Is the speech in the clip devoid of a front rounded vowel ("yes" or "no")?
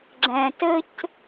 yes